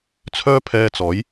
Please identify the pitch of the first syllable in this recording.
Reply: high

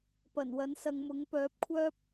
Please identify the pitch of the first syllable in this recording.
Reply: low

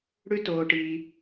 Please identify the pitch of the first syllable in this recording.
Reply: high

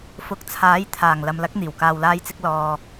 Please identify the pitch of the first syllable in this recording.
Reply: rising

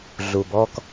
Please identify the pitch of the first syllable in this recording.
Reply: low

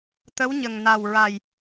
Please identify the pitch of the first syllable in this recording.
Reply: rising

